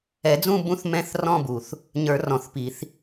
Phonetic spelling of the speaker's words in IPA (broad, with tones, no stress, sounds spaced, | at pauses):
ɛ˨˩˦ d͡z ũ˥˧ b ũ˦˥ θ m ɛ̃˦˥ θ r ɔ̃˥˧ b u˨˩ θ | ɲ ə˞˨˩˦ r ɔ̃˨˩ θ p i˨˩˦ θ